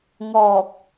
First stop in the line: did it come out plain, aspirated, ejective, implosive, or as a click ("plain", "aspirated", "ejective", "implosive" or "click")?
plain